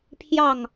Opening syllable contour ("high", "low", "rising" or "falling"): falling